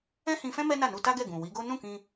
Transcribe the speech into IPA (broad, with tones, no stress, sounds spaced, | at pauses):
ɛ̃˦ h ĩ˧ f ɛ̃˦ m ɛ˦ n a˦˨ n u˧ t a˦ ɡ ɛ˦˨ ɡ ũ˨ w i˨˦ ɡ o˦ n ũ˦˨ k ĩ˧